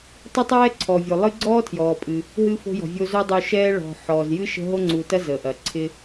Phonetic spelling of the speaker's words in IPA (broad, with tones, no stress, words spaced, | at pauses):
tˤɪ˥tˤɛː˥ǀʰɔ˩vʲo˩ lˠɨ˦ɡ͡ǀɔː˥tʰjɔː˩pʼɨ˩ | ɦɨ˥fo̤˥jɔ̤˨ vʲo˦zo˥dˤo˦ʃɛː˥ ɭɔ̤˨ ħɔː˩zjɨ˥ʃə̤˦ ɦo˥ŋ͡ǀu˨tɐ˥ zə˩ ʔɐ˩ǀʰɪ˦